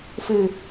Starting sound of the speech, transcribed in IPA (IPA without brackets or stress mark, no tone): f